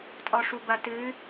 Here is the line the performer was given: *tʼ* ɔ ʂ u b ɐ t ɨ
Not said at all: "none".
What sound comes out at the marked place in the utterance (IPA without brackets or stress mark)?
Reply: tʼ